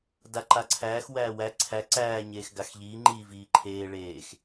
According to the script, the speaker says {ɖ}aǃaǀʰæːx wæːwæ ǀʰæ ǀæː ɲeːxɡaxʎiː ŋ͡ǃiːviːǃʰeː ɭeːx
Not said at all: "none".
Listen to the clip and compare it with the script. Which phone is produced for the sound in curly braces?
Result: d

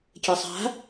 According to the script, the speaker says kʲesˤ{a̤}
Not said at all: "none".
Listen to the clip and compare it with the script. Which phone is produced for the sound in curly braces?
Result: a̤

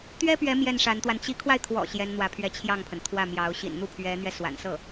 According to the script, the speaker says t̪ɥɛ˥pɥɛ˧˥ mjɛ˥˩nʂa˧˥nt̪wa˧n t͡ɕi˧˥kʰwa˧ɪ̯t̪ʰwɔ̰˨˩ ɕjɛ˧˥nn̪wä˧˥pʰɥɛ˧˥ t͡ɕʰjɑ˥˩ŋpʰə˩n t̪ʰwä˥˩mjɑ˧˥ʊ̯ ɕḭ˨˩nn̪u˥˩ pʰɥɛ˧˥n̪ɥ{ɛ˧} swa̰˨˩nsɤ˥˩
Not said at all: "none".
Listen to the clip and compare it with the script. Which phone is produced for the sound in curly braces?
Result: ɛ˧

